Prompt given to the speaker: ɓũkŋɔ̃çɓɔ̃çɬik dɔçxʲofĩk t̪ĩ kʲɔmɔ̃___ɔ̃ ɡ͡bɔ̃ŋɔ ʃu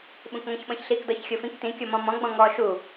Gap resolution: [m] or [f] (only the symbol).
m